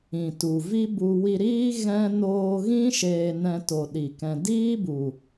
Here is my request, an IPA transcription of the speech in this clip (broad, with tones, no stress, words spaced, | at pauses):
ĩ˨tu˨ vi˦bu˧ wi˧ɾiː˦ ɣɛ̃˦ noː˧ɣĩ˦ ʃeː˧ nɛ̃˧to˨ ɗi˨kɛ̃˧ diː˦bu˨